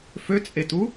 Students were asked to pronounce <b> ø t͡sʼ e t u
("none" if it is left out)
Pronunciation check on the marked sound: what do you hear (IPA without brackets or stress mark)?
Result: f